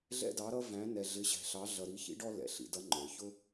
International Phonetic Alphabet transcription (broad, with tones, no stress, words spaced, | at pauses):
ɮɛ̰˥dɑ˧˥ɾʌ˥væ̃˧˥ nɛ˧ɮɪ˧˥ɕɛ̤˧ɬɑ˧˥ ɮʌ˧ɾi˧˥çḭ˥ɖɔ˥ lɛ̰˩˧ɬḭ˩˧dʌ˧˥ ŋ͡ǃə˞˩çʊ˥